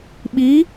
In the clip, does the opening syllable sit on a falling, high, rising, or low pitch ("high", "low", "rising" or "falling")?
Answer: rising